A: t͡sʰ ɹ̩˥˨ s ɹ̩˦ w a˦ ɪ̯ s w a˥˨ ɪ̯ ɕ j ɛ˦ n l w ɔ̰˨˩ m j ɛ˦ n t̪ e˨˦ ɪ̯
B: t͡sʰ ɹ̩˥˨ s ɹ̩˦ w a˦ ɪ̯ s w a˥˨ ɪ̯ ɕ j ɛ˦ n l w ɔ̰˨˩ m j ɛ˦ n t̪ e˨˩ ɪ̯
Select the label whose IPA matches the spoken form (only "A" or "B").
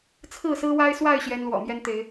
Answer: A